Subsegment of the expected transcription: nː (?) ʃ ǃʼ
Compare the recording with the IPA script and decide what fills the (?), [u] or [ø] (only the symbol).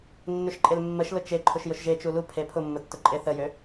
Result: ø